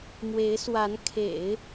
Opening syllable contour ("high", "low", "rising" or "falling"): rising